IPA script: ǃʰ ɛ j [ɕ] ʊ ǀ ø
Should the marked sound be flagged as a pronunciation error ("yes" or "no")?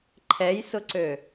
yes